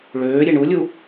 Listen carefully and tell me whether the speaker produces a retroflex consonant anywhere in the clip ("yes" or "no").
yes